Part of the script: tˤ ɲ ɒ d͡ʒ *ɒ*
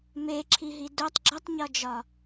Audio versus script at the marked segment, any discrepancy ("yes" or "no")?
no